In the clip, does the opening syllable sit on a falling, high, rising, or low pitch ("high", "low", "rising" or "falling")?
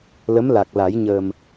rising